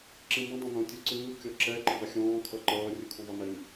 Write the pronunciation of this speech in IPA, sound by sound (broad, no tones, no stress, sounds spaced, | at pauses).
ǁ ĩ m ə̃ dˤ ə̃ n õ tʲ u ǀ ɯː kʲ ɔ ǁ ɛ ǃ ə̃ ðˤ ɪ xʲ ɔ̃ː kʰ ʌ ǃ ʌː rʲ ɯ kʰ ũ ðˤ ɐ n ɪ m